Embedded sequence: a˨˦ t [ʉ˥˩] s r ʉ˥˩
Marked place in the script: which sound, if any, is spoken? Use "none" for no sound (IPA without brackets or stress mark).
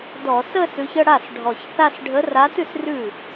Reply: ʉ˥˩